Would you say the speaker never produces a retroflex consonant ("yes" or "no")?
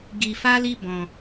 yes